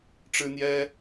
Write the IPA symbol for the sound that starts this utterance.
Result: ʈ͡ʂ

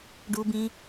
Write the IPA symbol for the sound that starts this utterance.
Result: ɖ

